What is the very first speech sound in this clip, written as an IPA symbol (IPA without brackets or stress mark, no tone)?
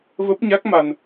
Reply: v